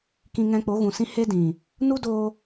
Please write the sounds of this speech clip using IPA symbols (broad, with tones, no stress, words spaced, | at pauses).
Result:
kĩ˧ŋɛ̃˧k͡po˨˦ ɣũ˨sĩ˦ he˦dĩ˨ | nu˦doː˧